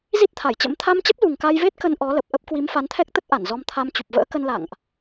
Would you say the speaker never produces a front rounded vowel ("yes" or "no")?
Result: yes